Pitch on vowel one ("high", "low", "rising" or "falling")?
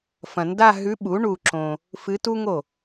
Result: low